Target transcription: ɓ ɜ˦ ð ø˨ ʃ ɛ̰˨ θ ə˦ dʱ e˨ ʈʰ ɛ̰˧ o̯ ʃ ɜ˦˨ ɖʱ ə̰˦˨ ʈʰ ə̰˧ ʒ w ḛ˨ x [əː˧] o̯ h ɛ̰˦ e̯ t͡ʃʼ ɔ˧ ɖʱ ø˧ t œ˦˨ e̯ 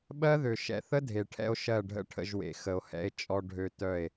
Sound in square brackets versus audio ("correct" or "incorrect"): incorrect